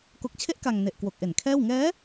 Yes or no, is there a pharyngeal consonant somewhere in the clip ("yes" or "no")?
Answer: no